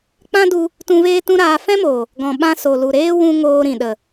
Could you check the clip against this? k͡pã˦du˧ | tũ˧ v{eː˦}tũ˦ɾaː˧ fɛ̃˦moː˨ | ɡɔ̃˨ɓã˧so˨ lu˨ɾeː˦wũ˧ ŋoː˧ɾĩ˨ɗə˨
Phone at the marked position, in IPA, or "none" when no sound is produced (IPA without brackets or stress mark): eː˦